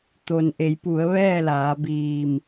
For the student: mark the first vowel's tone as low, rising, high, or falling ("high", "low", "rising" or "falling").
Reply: low